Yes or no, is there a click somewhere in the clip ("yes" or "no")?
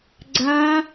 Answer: yes